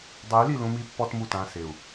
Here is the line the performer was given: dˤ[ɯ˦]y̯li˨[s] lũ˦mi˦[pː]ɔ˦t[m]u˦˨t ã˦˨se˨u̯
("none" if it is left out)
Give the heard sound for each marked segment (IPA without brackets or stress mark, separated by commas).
ɯ˨˦, none, pː, m